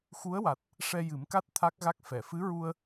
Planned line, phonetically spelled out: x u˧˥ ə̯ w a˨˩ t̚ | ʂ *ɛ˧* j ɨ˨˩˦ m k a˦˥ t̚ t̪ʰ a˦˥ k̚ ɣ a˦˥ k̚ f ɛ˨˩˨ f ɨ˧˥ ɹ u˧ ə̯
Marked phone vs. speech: correct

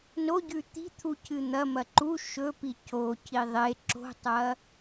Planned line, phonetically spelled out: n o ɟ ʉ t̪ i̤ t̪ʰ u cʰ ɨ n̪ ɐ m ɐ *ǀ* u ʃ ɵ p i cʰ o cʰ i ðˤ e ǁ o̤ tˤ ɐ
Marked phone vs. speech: incorrect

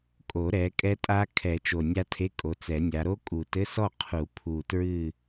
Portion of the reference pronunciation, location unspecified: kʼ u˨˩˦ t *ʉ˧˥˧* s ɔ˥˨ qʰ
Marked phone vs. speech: incorrect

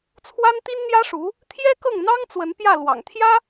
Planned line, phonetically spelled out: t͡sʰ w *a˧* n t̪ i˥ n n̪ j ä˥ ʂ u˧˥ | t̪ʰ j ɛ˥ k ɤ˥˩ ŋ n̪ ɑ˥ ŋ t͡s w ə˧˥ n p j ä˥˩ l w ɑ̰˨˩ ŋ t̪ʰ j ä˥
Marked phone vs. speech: incorrect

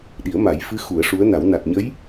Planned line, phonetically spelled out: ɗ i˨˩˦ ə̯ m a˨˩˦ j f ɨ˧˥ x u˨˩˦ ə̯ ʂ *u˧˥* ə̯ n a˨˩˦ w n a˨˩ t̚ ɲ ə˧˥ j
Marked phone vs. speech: correct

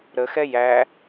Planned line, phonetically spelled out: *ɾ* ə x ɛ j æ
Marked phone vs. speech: correct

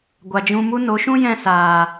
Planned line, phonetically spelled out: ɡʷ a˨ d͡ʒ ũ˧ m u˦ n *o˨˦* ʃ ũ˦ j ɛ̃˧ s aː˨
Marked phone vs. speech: correct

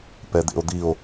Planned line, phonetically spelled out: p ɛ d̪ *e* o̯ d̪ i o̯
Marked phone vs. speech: incorrect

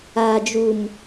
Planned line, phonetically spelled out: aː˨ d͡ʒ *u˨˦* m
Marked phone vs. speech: incorrect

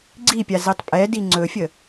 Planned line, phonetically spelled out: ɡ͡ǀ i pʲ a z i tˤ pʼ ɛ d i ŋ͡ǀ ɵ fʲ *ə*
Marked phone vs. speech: correct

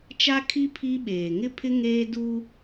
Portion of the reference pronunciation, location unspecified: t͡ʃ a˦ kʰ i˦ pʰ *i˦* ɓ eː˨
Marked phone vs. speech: correct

